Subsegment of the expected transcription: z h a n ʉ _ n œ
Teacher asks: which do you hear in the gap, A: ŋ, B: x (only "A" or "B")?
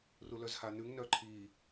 A